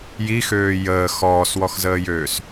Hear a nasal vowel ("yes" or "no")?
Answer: no